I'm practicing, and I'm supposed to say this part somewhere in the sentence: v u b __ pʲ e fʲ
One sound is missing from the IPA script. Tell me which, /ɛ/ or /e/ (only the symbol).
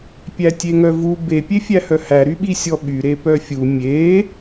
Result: e